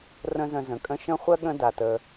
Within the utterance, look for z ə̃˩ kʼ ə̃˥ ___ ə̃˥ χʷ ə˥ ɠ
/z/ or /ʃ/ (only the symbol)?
ʃ